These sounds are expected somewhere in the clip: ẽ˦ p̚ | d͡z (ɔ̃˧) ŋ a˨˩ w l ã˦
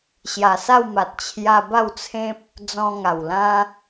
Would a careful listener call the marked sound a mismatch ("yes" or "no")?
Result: no